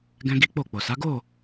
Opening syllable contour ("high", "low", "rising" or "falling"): high